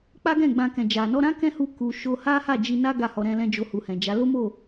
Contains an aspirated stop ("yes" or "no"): no